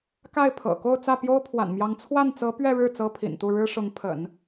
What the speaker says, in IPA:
ka˥˩ɪ̯pʰɤ̰˨˩ko˥˧ʊ̯ t͡sä˥˩pjo˥ʊ̯pʰwa̰˨˩nmjɑ˧˥ŋ t͡sʰwa˥˩nt͡sɤ˧˥ pɥɛ˥˧ɻɻ̩˥˩ t͡sɤ˥pʰḭ˨˩nt̪u˥˩ ɻɻ̩˥ʂʊ˧˥ŋ pʰə̰˨˩˦n

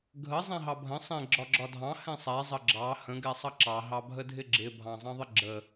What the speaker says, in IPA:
ɡʱə zˤɛ̃ɦɑbʱə̃ sˤɛ̃ ɡ͡ǁɒɡ͡ǁɒdʱɑ̃ hɛ̃sˤɛ zˤəɡ͡ǁɑ hə̃ ɡɛsˤʌǁɑ ɦɑbʱədʱɪɡ͡ǁɪ bʱɑ̃zˤɑ̃ðˤɪɡ͡ǁə

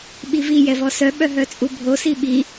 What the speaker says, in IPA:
ɓivi jɛvɔsœ ɓœɦœt͡sʼubʱo siɓi

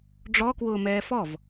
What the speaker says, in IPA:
ɖ͡ʐɔkwʊːmɛː fɔv

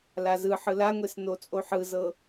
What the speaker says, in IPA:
lazɯ ħɯlaŋʷes not͡sʼoħɯzɤ

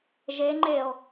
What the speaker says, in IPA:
ʒeŋ͡ǃeo̯

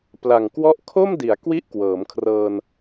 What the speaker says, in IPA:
pla˨˩ŋkwɔ˦˥ʔkʰo˥˩mdi˩˦a̯ kwi˥˩ʔkwɤː˩˦mkʰrɤː˧n

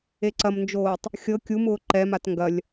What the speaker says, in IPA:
eǀɐmnd͡ʒoːtˤ | xʲɤ kʲumʊː ǃɛmat ŋɡɐlʲ

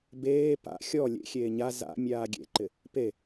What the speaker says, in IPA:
beː pa̰ xʲɔ lʲḛxʲeː ɲa za̰mʲaː ɡʲḛǃɪ | pe

